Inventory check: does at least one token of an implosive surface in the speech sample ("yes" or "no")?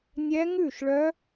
no